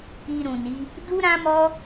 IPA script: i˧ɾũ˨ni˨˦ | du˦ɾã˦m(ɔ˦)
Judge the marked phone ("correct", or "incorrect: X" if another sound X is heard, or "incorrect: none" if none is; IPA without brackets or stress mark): correct